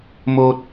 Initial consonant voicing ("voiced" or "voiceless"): voiced